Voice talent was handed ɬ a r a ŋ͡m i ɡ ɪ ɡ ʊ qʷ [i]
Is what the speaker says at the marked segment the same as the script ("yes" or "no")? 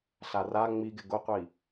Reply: yes